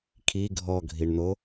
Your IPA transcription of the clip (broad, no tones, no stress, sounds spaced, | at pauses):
kʰ i ɡʱ ɔ ɡʱ i ɳ n o